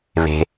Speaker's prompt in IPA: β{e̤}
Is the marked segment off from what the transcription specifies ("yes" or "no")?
no